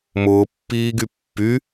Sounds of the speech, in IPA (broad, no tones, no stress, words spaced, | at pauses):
mʊːpːiːɡy pːy